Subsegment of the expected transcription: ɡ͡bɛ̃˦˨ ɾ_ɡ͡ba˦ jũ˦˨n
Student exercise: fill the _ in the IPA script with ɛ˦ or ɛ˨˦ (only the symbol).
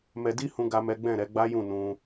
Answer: ɛ˨˦